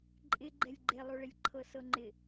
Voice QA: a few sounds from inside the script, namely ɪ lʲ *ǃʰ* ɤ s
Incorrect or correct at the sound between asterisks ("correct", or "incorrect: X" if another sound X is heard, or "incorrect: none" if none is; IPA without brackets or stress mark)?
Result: correct